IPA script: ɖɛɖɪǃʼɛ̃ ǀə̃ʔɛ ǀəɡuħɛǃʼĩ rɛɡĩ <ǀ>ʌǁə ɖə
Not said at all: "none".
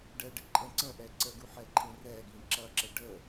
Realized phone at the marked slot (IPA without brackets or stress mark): ǁ